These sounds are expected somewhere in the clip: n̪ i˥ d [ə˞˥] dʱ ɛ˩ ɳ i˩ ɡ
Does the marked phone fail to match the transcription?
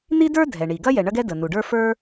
no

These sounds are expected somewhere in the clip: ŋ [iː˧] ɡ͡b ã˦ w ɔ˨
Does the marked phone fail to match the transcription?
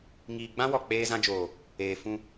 no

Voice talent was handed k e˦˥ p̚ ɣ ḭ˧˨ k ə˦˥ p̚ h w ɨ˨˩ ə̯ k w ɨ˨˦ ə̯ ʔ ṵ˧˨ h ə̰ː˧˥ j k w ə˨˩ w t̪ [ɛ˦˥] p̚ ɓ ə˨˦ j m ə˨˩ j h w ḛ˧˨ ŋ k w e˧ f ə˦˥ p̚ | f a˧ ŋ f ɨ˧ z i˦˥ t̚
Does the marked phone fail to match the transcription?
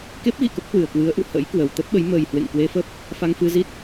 yes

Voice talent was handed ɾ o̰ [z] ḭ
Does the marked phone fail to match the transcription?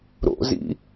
no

